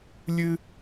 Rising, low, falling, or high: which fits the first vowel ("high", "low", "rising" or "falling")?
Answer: high